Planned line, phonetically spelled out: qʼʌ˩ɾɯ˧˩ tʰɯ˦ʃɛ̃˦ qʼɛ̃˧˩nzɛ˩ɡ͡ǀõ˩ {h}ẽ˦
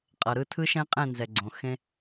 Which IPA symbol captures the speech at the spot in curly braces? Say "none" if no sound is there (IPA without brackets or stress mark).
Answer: x